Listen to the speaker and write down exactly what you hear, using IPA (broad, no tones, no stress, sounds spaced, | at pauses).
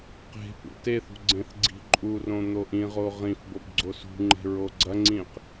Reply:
q e̤ p ṵ t e θ ṳ ɡ͡ǀ ẽ θ ɡ͡ǀ i̤ ǃʼ u r õ n̪ o ʔ ĩ ʁ o ʁ ĩ f b o b ɡ͡ǀ o s ṳ ŋ͡ǃ e̤ ɹ o ɡ͡ǀ ɐ ŋ͡ǀ ĩ q